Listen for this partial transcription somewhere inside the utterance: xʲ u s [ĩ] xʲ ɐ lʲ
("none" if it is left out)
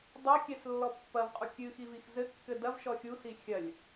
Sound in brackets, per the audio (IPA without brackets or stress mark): i